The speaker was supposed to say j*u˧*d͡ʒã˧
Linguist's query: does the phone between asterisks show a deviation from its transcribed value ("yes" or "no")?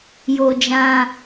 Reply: yes